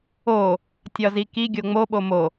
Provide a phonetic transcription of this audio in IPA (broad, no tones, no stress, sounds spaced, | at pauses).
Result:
o | tʲ ɒ z i k i ɡʲ o ŋ͡m o ɓ o m o